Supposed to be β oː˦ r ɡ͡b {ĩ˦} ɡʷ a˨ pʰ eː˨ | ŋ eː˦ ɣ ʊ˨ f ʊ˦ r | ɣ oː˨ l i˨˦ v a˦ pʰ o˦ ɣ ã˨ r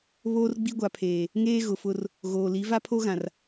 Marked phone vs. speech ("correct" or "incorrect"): incorrect